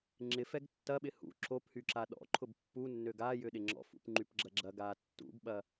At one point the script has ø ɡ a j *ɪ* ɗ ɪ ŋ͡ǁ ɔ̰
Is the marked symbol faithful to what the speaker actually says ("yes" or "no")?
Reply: no